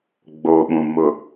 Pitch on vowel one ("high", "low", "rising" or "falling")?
low